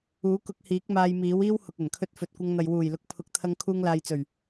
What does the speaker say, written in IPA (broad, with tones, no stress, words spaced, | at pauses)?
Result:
uː˨˥kʊ˧k̚hiː˨˥k̚ maː˧jmiː˨˥wiː˥w hʊ˨k̚ɐ˨˩nkʰɵ˧t̚ fɵ˨t̚kʷɐ˧ŋn̪ɐ˨j wuː˨˩j lʊ˨˥k̚ pʰʊ˨˥k̚t̪ʰɐ˧ŋ kʰuː˧ŋlaː˨jt͡sɵ˨˩ɥ